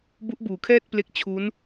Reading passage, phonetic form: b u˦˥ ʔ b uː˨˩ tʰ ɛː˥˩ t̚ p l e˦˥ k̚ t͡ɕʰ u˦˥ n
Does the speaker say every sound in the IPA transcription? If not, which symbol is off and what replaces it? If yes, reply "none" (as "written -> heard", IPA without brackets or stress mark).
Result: tʰ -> kʰ